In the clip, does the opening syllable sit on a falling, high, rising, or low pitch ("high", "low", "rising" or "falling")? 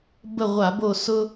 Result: falling